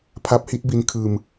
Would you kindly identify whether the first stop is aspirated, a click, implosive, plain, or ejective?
aspirated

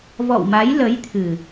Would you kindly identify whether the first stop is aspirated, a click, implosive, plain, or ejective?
aspirated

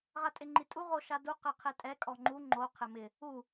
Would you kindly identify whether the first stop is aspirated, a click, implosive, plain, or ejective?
ejective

